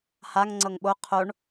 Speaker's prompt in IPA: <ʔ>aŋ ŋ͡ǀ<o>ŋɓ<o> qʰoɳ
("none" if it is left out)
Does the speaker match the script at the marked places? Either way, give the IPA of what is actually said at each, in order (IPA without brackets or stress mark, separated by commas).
h, ɤ, o